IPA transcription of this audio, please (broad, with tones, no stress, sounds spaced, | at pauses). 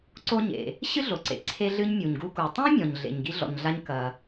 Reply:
ǀ o˥ ɲ ḛ˩ | ɕ ɨ˥ ɮ o˩ ǀ ḛ˩ ǀʰ e˥ ɮ ɨ˥ ɲ mʲ u˩ ɲ ɡ u˥ k u˩ tˤ ẽ˥ mʲ ɔ̃˩ ɲ ɮ ḛ˩ ɲ ɡ i˥ ɮ ɔ̰˩ ɲ ɮ a˥ ɲ k ɐ˩